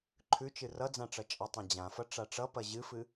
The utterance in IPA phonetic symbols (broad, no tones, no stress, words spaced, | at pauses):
ǃʰʉt͡ʃɨ rʌd͡zã ʈ͡ʂʌt͡ʃʼɐtˤẽ d͡ʑãfʌ ʈ͡ʂaʈ͡ʂʌpɐ ʑɨfɨ